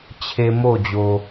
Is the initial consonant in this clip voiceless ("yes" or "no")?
yes